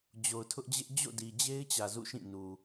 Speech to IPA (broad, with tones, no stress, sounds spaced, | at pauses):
d͡ʑ o˨ ʊ̯ tʰ ʊ˦ ʔ d͡ʑ ɪ˦ ʔ d͡ʑ o̰˦˨ d i˨ d͡ʑ e˦ ɪ̯ t͡ɕ ä˨ z ṵ˦˨ ʃ ĩ˦˨ n u˨